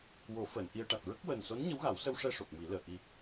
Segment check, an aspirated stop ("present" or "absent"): absent